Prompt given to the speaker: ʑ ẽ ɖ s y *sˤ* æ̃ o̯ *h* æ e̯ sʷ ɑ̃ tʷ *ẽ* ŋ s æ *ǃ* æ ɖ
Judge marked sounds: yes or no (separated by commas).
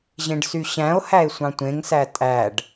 no, yes, yes, no